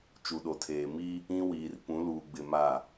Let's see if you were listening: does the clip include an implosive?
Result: yes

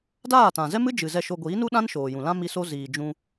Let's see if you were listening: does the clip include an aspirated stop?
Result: no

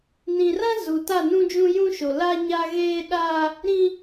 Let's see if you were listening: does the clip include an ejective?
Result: no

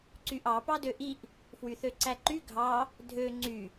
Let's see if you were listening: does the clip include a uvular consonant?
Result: no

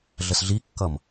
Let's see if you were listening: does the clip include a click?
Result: no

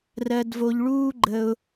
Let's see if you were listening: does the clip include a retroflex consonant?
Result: yes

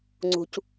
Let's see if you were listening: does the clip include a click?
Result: yes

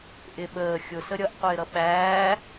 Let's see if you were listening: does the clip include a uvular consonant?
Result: yes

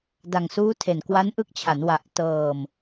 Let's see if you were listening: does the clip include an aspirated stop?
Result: yes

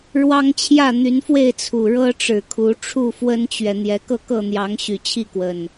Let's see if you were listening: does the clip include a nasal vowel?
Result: no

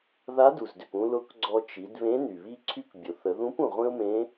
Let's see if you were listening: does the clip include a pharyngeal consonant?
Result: no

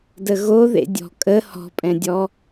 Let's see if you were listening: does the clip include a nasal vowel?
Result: yes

